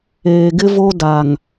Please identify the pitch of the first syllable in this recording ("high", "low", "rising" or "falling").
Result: low